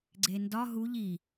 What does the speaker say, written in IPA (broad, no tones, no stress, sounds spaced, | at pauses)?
ɡ͡ǀ e n d ɒ ɦ u ʎ i